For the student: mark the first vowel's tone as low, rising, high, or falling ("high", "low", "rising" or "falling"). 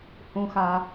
low